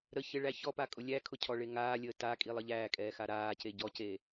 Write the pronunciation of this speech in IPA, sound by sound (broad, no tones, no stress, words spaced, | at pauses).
ɾə çɪɭæçɔpa kʼʊlʲækʰʊ cʰɔɭeŋaːlʲəː ta kʼilˠəʎæːkʼɛː xaɾaːce ɟɔce